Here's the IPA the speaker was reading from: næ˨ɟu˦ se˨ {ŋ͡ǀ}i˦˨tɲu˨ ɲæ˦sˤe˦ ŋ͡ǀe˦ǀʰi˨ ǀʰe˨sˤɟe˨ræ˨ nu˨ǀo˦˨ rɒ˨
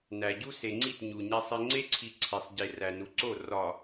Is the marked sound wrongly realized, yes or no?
no